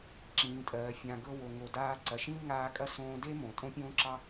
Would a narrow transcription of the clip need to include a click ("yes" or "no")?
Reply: yes